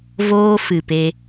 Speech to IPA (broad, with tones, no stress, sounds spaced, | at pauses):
v oː˦ f ɨ˨ p e˧